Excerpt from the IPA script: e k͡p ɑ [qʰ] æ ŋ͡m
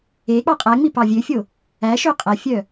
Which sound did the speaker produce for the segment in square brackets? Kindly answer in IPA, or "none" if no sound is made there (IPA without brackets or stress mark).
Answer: qʼ